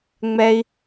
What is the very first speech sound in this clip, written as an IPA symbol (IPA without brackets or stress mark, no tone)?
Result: ŋ͡m